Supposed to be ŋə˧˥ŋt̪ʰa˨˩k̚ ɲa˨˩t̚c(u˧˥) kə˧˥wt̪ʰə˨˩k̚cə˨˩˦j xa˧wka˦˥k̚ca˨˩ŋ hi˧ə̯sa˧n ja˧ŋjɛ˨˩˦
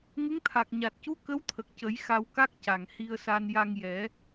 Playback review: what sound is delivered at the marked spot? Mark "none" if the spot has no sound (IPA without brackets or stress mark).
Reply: u˧˥